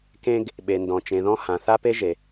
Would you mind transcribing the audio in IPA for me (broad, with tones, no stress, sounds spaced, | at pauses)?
k ẽ˧ ɡ | ɓ e˩ n d ɔ̃˩ t͡ʃ ẽ˩ ð ɔ̃˧ h ã˩ θ a˥ p e˥ ʒ e˩